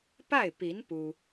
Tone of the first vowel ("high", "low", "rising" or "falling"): falling